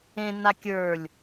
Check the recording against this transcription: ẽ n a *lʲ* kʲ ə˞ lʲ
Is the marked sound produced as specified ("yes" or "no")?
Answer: no